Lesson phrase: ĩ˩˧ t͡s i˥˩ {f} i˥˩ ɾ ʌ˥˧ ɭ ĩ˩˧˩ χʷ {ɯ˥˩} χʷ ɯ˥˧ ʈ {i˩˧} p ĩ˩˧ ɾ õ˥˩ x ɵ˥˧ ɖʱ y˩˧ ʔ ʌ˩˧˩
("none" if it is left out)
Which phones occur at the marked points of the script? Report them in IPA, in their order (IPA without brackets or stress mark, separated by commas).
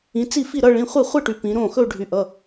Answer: f, ɯ˥˩, y˩˧